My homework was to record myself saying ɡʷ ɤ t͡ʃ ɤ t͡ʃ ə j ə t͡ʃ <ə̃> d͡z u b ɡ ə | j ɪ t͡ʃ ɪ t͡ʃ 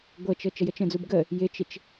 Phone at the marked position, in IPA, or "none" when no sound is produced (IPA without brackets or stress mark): ə̃